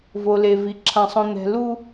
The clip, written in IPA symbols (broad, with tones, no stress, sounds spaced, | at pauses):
v o˨ l e˨ v i˨ ǁʰ ã˨ sˤ õ˨ n̪ ɛ̤˨ l u˦